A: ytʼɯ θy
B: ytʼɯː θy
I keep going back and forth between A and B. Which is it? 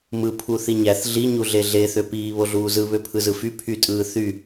B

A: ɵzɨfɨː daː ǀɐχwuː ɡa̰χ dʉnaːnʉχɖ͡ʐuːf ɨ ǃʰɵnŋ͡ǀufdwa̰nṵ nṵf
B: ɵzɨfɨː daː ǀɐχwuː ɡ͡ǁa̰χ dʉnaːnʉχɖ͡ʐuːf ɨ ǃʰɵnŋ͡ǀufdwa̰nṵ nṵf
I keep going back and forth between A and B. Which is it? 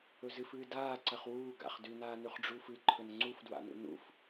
A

